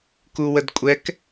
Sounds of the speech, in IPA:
k u w ə d kʷʼ ɛ k

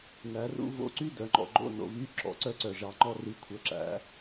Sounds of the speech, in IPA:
n æ˨˩˦ r ṵ˥ v o̰˧˥˧ ǀ y˥ d œ˨˩˦ ŋ͡ǃ ɔ̰˦˨ ɡ͡ǃ o̰˧˥˧ n o̰˨˩ β y˧˥˧ ǁ ɔ̰˨˩ ǀ œ˥ ǀ œ˨˩ ʒ ɑ˨˩˦ ŋ͡ǃ ɔ˥ r i˩˥ kʷʰ œ˩˥ ǁ æ̰˨˩˦

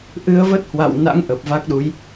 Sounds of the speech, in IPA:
ʔ ɨ˧ ə̯ v ə˦˥ t̚ h w a̰˧˨ w n a̰˧˥ ŋ ʔ ə˨˩ p̚ v a˦˥ k̚ ɗ u˨˦ j

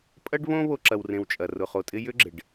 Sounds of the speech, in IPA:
pʼ ɐ˥ ɖ β õ˦ β o˦ ǁ ɐ˨ w r ẽ˨ w t͡ʃʼ ɐ˩ r ʊ˩ χ o˩ tʼ ɪ˦ j ʏ˥ ɡ͡ǁ ɪ˩ ɖ

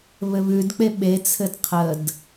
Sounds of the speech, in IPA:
β ɘ β ʉ d k͡p e ɓ e t͡sʰ ɘ d qʰ ə d

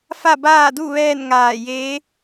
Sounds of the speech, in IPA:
f a˥˨ b aː˥˨ d u˥˨ ʋ ɛː˥˨ n ŋ aː˧˩ j eː˧˥

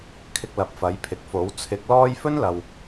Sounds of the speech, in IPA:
kʰ ɪ˧ k̚ l ɐ˨˥ p̚ f ɐ˨˥ j pʰ ɪ˨ k̚ f o˨˥ w t͡sʰ ɪ˨˥ k̚ l ɔː˥ j f ɵ˥ n l ɐ˨ w

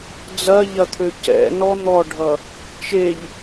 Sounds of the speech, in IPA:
d͡z ɐ ʎ ɐ t̪ʰ ø c ɛ̰ n ɔ n̪ ɔ ɖʱ ʌ | t͡ʃ e ʎ

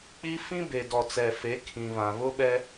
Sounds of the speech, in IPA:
k͡p i˦ f ĩ˦ b e˨ d ɔ˨ t͡s ɛ˨ f e˨˦ kʰ ĩ˨ β ã˨ β ʊ˦ ɓ ɛ˦

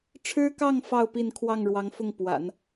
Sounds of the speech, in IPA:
ʈ͡ʂʰ ɻ̩˥ k ɑ˥˧ ŋ f ɑ˥˧ ʊ̯ p i˥˧ n kʰ w ɑ˥˩ ŋ ɻ w ɑ˧˥ ŋ f ʊ˥˩ ŋ p w a̰˨˩˦ n

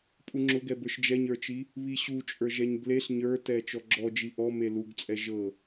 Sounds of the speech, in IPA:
pʼ u ŋ͡ǁ ʊ ɡ ɛ b ə˞ ʃ d͡ʒ ɛ ɲ ə˞ t͡ʃ i | β i ɕ u t͡ʃʼ ə˞ ʒ ɛ ɲ b l e ɬ ɲ ə˞ t ɛ t͡ʃ ɔ ɡ͡ǁ ɔ d͡ʒ i ʔ ɔ m e l u ɡ t͡sʼ ɛ ʒ ɤ

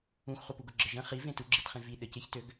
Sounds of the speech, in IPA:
ũ x χ u p u ɡ ʊ ɡ͡ǁ ə ʒ ə̃ χ i v ẽ t u ɡ͡ǁ i t χ ẽ v i ɗ ə c e ç t ø ɡ

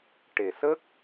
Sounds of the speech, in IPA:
ʈ e˨˩ s ə˦˥ k̚

